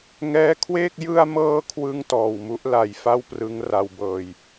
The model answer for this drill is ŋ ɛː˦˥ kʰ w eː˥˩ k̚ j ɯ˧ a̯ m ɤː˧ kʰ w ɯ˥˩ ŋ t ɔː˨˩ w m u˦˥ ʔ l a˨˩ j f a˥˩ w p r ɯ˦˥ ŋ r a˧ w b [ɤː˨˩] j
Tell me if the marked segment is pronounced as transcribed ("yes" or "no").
no